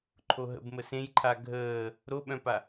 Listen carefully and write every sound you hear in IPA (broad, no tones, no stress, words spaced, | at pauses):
ǃʰoɦə̰b məsẽjǃʰa ɡʱəː | ɾoɓœ̃pa